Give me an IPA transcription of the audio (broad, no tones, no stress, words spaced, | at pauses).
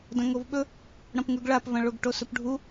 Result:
dɐ̃ŋovɓɵ | ɽɐ̃pŋʉɡɭapvɐ̃ ɭoɡʈosɵpɖʱu